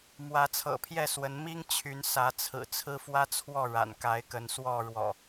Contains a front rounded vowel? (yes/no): yes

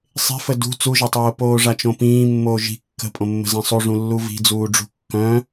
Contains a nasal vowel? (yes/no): yes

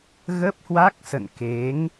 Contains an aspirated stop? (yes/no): no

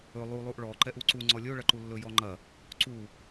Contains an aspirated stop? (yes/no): no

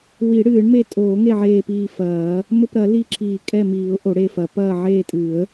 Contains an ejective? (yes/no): yes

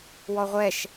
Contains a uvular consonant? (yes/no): yes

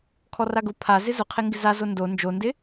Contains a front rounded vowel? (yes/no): no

